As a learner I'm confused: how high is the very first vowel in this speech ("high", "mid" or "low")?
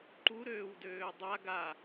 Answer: high